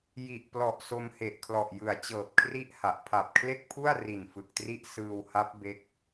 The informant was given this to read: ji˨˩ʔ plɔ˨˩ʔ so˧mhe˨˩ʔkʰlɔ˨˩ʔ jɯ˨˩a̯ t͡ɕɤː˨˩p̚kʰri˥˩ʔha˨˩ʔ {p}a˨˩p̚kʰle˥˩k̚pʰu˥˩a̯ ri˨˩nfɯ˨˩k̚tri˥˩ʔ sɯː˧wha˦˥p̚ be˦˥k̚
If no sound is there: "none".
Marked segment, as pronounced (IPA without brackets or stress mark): pʰ